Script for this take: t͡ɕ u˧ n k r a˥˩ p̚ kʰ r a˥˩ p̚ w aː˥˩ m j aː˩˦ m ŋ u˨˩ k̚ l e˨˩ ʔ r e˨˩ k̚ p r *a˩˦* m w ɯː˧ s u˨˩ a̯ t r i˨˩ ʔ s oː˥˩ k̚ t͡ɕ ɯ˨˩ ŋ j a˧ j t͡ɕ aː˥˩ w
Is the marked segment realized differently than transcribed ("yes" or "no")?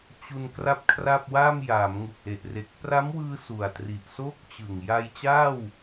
yes